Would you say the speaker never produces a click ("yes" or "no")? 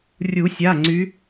no